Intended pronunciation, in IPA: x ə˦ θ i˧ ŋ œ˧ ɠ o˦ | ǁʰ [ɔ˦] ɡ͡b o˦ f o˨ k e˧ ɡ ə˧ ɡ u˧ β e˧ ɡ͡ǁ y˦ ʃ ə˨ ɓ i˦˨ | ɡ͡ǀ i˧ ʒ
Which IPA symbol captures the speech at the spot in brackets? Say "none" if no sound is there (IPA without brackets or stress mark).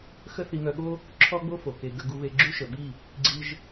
ɔ˦